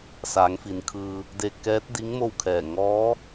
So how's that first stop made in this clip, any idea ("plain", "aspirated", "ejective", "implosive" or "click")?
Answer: aspirated